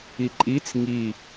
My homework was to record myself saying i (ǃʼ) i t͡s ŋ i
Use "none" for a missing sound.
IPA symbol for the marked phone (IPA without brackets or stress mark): ǃʼ